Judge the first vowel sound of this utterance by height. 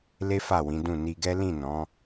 mid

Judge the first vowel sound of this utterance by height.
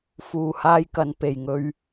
high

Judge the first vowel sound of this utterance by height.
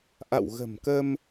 low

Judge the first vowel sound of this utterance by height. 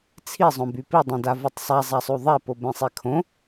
high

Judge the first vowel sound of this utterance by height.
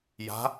low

